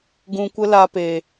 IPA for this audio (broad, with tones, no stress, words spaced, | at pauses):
ɡũ˧kʷə˦ la˧pe˨